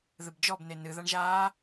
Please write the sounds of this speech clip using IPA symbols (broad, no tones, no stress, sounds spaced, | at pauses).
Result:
ð ɨ b d͡ʒ ɔ b n e n ɨ ð a ɳ ʒ aː